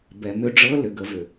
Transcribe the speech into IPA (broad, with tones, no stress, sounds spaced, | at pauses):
b ɛ˩˧ m ʏ˧ ɖ͡ʐ ɤ˧˥ l ʏ˩ ɡ ə˩˧ v ʏ˩